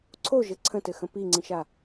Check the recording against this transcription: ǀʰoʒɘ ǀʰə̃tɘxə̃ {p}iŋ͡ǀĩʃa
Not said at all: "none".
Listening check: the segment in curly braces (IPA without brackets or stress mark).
p